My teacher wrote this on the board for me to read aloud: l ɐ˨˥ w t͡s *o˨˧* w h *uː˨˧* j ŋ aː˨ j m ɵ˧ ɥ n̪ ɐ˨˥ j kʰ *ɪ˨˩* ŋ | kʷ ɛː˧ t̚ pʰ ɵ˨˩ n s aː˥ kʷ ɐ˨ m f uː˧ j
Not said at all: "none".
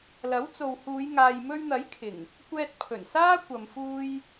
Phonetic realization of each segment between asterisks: o˨, uː˨˧, ɪ˨˩

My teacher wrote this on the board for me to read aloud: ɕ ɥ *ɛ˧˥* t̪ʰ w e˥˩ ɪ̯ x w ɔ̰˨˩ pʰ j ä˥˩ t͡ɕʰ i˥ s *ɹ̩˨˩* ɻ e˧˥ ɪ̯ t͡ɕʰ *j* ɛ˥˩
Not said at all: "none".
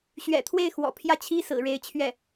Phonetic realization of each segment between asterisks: ɛ̰˨˩, ɹ̩˨˩, ɥ

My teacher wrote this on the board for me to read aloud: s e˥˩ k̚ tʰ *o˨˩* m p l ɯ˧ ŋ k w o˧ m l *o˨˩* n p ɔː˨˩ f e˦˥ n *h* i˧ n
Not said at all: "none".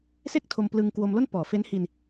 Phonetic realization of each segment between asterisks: o˧, o˥˩, h

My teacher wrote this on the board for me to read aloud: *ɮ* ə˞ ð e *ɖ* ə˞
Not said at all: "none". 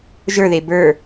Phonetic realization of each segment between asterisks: ʒ, b

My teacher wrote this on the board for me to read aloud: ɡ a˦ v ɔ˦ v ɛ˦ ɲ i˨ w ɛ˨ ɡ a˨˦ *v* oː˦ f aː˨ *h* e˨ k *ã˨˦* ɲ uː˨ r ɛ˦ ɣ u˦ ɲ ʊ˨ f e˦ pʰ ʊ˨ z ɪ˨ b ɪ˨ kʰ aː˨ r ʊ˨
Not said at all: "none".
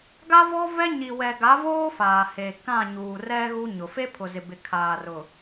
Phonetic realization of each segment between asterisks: v, h, ã˦˨

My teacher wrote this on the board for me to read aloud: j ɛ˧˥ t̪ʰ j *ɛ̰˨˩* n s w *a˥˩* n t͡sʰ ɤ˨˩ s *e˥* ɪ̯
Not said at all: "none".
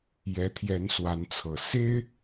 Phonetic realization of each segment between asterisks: ɛ˧˥, a˧˥, e˥

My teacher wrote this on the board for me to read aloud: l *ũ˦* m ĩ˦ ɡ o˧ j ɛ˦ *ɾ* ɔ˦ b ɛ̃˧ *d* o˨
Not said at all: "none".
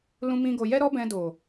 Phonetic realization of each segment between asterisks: ũ˦, ɾ, d

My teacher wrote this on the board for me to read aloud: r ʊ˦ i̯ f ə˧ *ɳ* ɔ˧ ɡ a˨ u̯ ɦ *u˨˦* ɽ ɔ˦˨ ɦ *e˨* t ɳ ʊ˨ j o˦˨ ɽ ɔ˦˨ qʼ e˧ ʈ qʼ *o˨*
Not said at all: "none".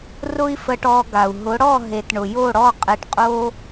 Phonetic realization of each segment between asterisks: ʈ, ʊ˨˦, e˨, o˦

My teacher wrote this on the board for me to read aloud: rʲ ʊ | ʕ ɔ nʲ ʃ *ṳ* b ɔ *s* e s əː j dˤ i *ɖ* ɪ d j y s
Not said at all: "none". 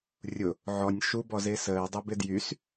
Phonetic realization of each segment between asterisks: u, z, b

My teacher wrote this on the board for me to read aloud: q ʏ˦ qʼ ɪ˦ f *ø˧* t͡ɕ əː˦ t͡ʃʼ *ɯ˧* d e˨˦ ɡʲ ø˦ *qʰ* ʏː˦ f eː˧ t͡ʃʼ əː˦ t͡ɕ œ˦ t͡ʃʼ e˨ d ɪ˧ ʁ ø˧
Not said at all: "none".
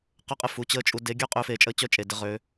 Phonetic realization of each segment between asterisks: u˧, u˧, qʼ

